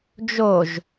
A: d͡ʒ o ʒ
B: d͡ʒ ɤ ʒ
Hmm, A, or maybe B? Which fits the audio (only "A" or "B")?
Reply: A